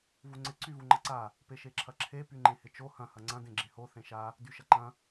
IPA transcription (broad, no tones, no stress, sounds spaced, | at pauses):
v u ŋ͡ǀ ɪ ǀ y v u ŋ͡ǃ ɐ ǀ a | p e ʃ e ǁʰ ɐ ǁʰ e p y ŋ͡ǃ ẽ h ɪ t͡ʃ o h ɐ̃ h ɐ ŋ͡ǀ ɐ̃ d ẽ ɡ͡ǁ ẽ h o θ ẽ ʃ a | d y ʃ ɐ ǃ ɐ̃